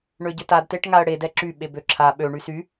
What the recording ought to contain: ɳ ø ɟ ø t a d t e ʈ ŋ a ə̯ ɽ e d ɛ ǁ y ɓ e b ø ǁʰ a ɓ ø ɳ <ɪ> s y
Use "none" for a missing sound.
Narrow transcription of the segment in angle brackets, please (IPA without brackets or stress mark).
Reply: y